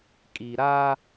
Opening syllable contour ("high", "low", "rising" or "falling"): low